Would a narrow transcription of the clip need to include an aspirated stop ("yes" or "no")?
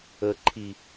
yes